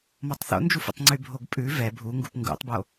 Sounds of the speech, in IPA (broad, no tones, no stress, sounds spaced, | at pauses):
m ɔ tˤ θ o̰ n d͡ʒ u f ṵ tˤ ŋ͡ǀ y bʱ o ɡ pʼ ʉ v ɛ bʱ u ŋ ɡ u p ŋ ɡ ṵ tˤ b o